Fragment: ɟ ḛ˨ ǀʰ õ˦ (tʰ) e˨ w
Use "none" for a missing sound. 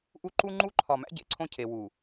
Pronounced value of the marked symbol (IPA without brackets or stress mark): cʰ